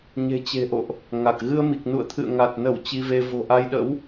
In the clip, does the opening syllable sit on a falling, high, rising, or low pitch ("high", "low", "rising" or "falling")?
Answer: low